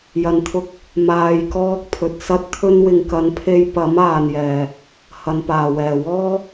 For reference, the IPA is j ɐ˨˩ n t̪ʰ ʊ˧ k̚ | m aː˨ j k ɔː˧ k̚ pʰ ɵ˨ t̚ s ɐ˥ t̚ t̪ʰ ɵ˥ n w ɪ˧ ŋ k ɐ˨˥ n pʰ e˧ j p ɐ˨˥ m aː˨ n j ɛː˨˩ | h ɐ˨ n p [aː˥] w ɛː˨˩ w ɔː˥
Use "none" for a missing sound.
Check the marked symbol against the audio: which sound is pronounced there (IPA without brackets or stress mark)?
aː˨˩